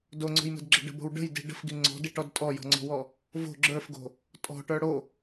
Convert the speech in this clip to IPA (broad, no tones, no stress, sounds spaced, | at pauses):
d o ŋ͡ǀ o̤ j m ə̤ d ɡ͡ǁ ə̤ ɖ ə̤ b o̤ w ɖ ə̤ j d i̤ ɖ ə̤ f ɡ i ŋ͡ǀ ɔ̤ d i ʈ ɔ d tʼ ɔ j ɔ̤ ŋ͡ǀ ɔ̤ w ɔ | v o̤ ɡ͡ǁ ə˞ f ɡ o̤ | tʼ ɔ̤ ʈ ə˞ ɽ o